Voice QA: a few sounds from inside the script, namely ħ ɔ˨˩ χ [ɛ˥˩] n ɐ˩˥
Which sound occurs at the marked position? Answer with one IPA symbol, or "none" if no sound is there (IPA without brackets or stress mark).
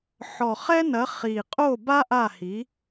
ɛ˥